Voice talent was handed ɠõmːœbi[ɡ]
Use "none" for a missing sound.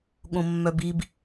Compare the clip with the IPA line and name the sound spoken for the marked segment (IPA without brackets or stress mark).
b